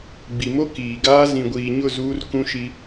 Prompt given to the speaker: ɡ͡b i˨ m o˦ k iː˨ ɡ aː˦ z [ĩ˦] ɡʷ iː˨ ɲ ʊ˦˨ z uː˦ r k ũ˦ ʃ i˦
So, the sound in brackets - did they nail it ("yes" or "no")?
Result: no